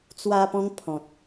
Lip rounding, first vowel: unrounded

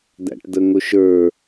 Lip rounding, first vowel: unrounded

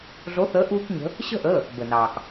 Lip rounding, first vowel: rounded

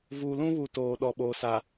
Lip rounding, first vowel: rounded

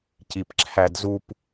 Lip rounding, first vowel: unrounded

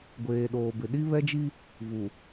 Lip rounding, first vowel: unrounded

